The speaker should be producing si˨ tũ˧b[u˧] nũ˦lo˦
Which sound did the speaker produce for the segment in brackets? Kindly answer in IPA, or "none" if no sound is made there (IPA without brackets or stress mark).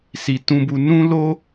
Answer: u˧